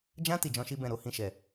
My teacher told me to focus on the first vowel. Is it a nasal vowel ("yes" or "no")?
yes